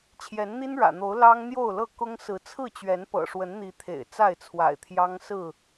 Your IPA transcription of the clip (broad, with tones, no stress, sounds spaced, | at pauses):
t͡ɕʰ j ɛ˨˦ n n̪ i˦ n ɻ ä̰˨˩ n̪ o˨˦ ʊ̯ l ɑ˦ ŋ n̪ j o˥˨ ʊ̯ l ɤ˥˨ k ʊ˦ ŋ s ɹ̩˨˦ t͡sʰ ɹ̩˥˨ t͡ɕ ɥ ɛ˨˦ n p ɤ̰˨˩ ʂ w ə˨˦ n n̪ i˨˦ t̪ʰ ḛ˨˩ ɪ̯ t͡s a˥˨ ɪ̯ t͡sʰ w a̰˨˩ ɪ̯ t̪ʰ j ɑ˦ ŋ s ɹ̩˥˨